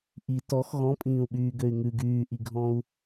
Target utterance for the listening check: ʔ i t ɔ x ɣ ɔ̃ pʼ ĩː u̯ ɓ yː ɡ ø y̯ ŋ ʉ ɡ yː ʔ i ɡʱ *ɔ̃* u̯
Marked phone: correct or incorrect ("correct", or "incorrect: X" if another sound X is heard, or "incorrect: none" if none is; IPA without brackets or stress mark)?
correct